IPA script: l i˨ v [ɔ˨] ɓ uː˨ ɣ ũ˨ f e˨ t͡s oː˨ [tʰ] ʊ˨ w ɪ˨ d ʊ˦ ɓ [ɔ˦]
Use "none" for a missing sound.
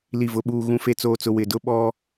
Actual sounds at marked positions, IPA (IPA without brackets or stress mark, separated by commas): ʊ˨, t͡s, ɔ˦